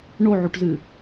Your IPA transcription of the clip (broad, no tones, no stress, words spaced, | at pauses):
ɳoʕuʈzɨ